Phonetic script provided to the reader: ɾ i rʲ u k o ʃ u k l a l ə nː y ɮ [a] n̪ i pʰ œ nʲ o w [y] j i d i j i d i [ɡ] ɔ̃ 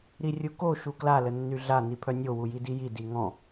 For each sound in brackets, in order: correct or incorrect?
correct, incorrect: u, incorrect: ŋ

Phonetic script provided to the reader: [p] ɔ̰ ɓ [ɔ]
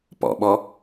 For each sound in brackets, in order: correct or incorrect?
correct, correct

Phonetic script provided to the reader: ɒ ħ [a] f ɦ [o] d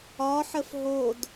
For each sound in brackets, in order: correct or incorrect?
incorrect: ə, correct

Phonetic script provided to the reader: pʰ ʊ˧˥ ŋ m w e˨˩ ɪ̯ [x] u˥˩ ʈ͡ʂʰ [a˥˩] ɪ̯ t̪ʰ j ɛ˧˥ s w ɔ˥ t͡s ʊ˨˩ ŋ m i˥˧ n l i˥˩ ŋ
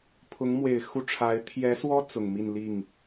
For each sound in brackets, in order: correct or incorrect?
correct, incorrect: a˧˥

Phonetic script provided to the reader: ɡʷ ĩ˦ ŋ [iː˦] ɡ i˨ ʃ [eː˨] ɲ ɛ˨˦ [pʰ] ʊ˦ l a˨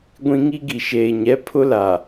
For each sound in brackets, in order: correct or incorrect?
incorrect: i˦, correct, correct

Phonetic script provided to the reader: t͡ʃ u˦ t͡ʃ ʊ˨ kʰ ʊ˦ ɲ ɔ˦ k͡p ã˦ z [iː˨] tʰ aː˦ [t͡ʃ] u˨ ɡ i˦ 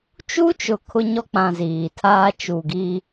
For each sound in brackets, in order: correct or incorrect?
correct, correct

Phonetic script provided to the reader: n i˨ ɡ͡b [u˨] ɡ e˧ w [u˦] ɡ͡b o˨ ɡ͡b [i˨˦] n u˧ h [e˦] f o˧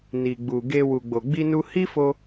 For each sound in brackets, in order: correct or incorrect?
correct, incorrect: u˨, incorrect: i˧, incorrect: i˦

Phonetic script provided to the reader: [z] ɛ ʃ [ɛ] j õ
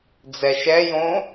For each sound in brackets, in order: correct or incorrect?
incorrect: d͡z, correct

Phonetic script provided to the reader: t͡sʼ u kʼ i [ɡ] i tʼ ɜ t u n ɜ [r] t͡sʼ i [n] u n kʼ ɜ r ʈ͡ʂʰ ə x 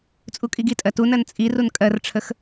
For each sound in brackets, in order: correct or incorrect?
correct, incorrect: n, incorrect: r

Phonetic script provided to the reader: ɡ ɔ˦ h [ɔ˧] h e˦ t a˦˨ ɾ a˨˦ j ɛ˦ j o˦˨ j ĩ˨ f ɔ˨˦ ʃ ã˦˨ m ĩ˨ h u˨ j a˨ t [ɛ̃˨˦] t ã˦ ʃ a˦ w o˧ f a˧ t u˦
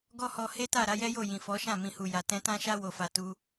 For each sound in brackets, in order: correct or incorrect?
correct, correct

